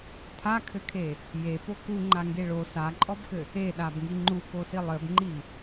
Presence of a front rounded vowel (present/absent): absent